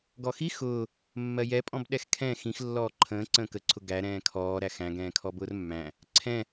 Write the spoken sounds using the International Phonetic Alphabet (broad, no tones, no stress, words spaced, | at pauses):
ɡɔxi xʊː | mːɜjɛpʼɔ̃bɗɛx kʰɛ̃ xĩx lːɔːǃʰə̃ː ǀə̃ːkəǀʰʊ ɡæ ɾɛ̃ːkʰɔː ɾæxæ̃ ɡɛ̃ːkʰɔbʊːrmːæ̃ | ǀʰɛ̃